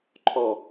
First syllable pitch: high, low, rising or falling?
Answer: falling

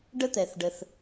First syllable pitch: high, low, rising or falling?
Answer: high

